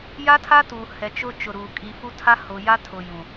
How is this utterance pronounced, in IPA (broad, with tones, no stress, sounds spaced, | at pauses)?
j a˦ tʰ a˦ t uː˨ h ɛ˨ t͡ʃ ʊ˦ t͡ʃ ʊ˨ ɾ uː˨ kʼ i˨ f u˦ tʰ a˦ h ʊ˨ j a˦ tʰ ʊ˨ j ũ˨